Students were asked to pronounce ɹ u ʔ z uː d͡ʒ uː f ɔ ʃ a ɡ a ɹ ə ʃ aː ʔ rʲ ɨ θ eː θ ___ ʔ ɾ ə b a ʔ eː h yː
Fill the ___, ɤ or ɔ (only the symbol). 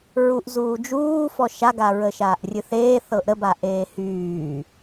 ɤ